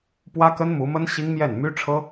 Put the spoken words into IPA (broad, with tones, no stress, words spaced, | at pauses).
pwä˥kə˥nmu˧˥mə˥n ɕi˥ŋmjɛ˥˩n my˥ʈ͡ʂʰɤ˥